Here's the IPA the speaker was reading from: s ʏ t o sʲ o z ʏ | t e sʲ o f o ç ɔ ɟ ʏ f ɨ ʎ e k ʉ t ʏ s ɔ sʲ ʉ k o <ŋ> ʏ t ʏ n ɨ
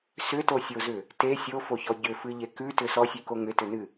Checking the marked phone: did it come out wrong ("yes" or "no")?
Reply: no